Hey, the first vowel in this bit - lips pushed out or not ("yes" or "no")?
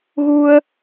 yes